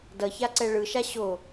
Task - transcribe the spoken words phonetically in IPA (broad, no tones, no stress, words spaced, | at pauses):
dʌçaǀɛ ɭɯʃa ɕo